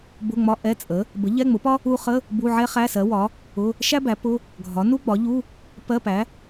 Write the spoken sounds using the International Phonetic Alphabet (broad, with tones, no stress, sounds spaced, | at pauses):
b ʊ˧˥˧ ŋ͡m ɒ˧˥˧ ʔ ɛ˧˥˧ t͡sʼ ə˩˥ | b ə˩˥ ʎ ɛ˧˥˧ ŋ͡m ʊ˩˥ p ɒ˥ | u˥ χ ə˧˥˧ | b u˧˥˧ ʕ ɛ˥ χ æ˧˥˧ s ɜ˩˥ w ɒ˩˥ | ʊ˧˥˧ | ʃ æ˥ b æ˩˥ p ʊ˧˥˧ | ɡʱ ɒ˩˥ n u˥ ɡ͡b ɒ˩˥ ʎ u˧˥˧ | p ɜ˧˥˧ p æ˩˥